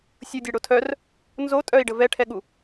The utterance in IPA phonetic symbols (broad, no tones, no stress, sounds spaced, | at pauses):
sʲ u dʲ ɛ ɽ o tʰ œ r | n z o tʼ œ i̯ ɖ ə v ɛ ʈʰ ɛ ɠ u